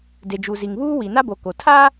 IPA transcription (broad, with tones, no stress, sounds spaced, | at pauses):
d e˨ d͡ʒ u˨ z i˨ ŋ β uː˦ w i˨ n a˦ b o˨ k o˨ tʰ a˦